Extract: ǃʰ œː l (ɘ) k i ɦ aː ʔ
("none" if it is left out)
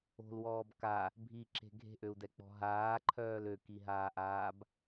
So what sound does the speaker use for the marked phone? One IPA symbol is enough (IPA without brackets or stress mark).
ø